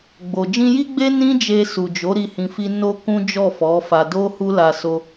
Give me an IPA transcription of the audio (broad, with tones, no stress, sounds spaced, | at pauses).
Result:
ɡ͡b o˨ d͡ʒ ĩ˧ j i˦ ɡ͡b e˦ n ĩ˦ d͡ʒ e˧ s u˨ d͡ʒ o˨˦ ɾ i˦˨ h ĩ˧ f i˦ n o˦ k ũ˦ d͡ʒ ɔ˦˨ f ɔ˨˦ f a˧ d o˦ h u˦ l a˧ s o˧